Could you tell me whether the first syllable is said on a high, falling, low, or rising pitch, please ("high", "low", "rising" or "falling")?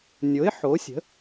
rising